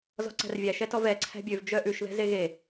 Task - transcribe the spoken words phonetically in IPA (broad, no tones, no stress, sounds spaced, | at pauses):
z ɔ̤ ǀ æ̤ r vʲ æ ʃ ɛ t ɔ v ɛ ǀʰ æ̤ bʲ ø v d͡ʒ œ ʔ ʉ ʃ ð ɛ̤ z e ɣ e